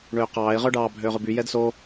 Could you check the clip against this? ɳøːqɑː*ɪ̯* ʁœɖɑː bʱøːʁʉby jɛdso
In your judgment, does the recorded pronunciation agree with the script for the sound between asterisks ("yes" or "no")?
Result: yes